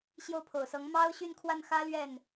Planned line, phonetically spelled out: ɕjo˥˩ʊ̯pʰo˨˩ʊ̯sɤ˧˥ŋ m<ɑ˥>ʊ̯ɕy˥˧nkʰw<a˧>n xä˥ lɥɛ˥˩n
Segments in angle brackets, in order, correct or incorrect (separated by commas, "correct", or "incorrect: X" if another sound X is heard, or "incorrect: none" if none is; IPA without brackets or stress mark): correct, incorrect: a˥˩